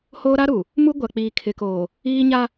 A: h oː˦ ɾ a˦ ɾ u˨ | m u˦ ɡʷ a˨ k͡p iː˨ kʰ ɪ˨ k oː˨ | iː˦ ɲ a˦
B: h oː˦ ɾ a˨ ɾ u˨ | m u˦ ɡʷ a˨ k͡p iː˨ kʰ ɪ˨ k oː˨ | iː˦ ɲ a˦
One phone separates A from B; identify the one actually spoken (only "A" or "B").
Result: A